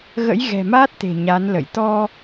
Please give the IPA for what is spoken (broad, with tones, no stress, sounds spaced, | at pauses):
ɣ ə̰˧˥ j ɣ ɛ̤˨˩ m aː˦˥ t̚ t̪ e̤˨˩ ɲ a˨˦ n l ə̰˧˨ j t̪ ɔ˧